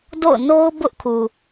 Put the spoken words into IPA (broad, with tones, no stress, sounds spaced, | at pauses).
d o̰˦˨ ʊ̯ n o˦ ʊ̯ b ʊ˦ ʔ kʰ u˨